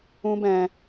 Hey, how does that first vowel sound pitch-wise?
high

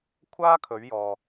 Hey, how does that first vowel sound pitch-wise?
high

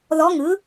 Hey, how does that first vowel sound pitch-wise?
rising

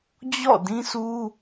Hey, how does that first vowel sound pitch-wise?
falling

